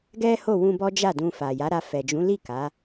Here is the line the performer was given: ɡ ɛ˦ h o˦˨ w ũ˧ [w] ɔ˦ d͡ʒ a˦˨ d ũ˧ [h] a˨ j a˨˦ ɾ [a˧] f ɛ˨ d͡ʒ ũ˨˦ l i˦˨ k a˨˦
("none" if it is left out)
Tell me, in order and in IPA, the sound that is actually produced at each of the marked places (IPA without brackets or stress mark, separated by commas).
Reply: b, f, a˧